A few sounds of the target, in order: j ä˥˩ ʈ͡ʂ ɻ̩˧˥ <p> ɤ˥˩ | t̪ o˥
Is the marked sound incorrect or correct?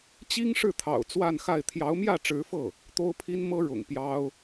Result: incorrect